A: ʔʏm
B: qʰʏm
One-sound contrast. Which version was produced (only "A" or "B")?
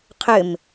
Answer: B